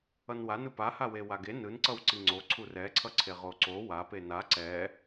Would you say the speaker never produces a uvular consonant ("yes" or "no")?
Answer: no